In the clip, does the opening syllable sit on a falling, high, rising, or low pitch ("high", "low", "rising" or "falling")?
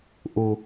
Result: low